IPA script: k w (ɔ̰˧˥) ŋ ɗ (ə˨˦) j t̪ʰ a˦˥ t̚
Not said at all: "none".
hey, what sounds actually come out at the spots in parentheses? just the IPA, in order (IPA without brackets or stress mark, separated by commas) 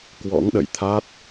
ɔ̰˧˥, ə̰˧˨